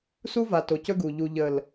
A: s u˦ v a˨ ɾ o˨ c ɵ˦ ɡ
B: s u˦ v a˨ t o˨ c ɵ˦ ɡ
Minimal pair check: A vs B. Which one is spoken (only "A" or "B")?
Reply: B